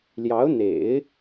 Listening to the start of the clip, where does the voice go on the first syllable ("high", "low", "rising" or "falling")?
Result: rising